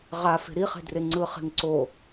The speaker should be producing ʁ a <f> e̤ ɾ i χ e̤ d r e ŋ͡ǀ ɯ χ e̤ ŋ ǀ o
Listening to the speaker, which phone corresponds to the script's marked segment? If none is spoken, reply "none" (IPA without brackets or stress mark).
f